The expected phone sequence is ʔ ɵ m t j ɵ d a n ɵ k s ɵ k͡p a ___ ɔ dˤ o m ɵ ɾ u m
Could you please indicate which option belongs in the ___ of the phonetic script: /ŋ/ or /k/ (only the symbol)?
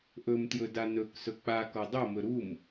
k